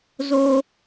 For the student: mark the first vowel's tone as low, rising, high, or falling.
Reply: high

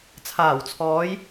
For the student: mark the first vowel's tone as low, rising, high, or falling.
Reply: low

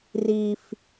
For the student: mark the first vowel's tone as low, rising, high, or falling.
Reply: low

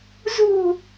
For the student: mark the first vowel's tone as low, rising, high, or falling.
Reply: falling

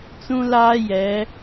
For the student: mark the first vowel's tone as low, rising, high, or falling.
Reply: high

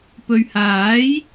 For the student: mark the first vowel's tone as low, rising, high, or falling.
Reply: low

